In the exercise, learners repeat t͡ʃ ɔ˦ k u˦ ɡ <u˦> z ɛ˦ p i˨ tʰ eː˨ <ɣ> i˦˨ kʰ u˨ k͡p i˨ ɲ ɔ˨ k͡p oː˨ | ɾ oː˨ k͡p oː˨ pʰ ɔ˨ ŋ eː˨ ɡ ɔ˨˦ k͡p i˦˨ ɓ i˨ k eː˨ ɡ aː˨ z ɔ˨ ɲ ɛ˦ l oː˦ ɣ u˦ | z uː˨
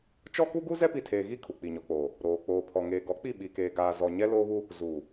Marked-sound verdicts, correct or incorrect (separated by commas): correct, correct